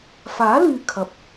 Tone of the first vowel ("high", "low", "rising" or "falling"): rising